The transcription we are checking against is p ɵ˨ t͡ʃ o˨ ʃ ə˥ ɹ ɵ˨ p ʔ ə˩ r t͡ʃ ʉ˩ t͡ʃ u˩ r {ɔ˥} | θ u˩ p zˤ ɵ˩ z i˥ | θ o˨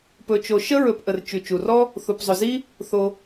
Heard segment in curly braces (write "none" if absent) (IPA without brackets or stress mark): ɔ˥